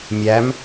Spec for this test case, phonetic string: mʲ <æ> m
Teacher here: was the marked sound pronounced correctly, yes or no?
yes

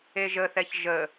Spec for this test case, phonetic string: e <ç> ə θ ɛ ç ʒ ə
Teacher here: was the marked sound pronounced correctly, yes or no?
no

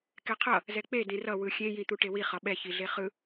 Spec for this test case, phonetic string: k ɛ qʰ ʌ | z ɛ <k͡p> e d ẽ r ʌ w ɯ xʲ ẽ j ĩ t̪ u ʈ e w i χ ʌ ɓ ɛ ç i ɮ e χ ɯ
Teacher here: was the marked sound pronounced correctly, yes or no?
yes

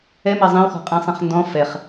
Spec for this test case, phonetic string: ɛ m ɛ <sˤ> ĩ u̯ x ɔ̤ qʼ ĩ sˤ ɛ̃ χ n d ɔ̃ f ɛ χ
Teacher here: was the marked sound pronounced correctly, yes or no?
no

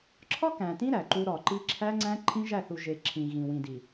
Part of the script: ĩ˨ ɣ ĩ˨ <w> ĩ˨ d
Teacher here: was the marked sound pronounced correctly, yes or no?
yes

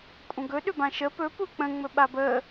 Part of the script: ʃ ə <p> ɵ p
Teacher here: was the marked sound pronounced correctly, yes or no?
yes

